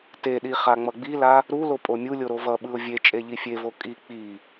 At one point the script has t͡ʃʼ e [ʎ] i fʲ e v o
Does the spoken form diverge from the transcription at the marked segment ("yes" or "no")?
no